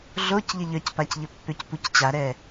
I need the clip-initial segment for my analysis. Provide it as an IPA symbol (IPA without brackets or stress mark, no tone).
ɮ